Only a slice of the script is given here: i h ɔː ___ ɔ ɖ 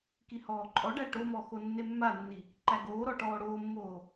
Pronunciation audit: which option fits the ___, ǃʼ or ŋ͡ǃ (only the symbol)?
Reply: ǃʼ